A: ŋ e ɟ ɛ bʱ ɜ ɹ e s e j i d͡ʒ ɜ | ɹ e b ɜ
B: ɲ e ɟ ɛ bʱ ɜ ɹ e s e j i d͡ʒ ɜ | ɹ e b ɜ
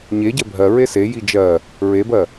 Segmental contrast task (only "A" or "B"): B